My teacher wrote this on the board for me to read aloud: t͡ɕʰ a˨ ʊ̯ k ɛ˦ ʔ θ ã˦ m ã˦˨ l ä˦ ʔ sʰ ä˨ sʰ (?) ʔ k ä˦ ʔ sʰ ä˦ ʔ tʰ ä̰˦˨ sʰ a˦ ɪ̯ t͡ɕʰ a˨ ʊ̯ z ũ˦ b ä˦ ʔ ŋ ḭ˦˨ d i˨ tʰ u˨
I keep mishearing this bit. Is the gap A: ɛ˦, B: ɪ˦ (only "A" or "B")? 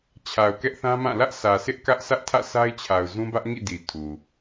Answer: B